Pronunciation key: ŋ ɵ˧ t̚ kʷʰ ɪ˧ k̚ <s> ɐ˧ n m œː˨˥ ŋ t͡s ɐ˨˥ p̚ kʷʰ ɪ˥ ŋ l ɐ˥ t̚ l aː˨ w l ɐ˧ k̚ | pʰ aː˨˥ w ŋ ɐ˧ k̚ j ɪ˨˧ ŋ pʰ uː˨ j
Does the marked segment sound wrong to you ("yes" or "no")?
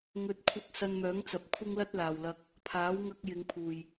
no